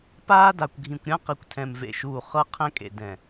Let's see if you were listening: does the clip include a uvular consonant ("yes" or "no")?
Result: yes